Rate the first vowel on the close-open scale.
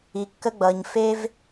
close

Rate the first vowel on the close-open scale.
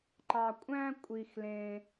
open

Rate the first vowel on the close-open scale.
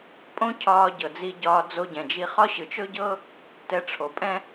mid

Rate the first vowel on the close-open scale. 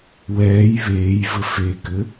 mid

